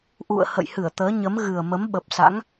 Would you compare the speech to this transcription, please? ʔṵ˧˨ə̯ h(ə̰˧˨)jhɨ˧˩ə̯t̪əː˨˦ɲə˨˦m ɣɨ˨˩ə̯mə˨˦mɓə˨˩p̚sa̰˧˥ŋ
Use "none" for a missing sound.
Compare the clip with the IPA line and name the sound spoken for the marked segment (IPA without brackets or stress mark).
ə̰˧˨